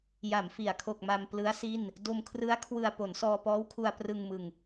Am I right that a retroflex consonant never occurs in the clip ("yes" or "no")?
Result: yes